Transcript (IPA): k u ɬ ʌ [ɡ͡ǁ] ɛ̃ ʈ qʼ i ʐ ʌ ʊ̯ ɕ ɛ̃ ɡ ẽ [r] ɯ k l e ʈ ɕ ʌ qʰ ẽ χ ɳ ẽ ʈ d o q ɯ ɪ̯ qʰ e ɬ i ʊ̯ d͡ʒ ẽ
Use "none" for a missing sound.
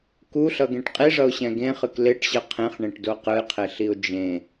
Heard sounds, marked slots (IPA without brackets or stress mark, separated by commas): ɡ, χ